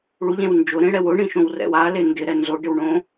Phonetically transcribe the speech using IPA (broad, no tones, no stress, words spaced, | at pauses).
ɭuʎẽw nd͡ʒʊɾẽɽɛw ʊɳĩʃõwrɛ̰w ale ndɪɾɛ nzoɖɪwɳõ